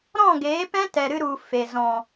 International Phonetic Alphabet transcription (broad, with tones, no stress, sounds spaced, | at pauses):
ɾ ɔ̃˦˨ ɡ eː˨˦ p ɛ̃˦ t ɛ˨ ɾ ɨ˧ ɾ u˨ f e˨ z ɔ̃˨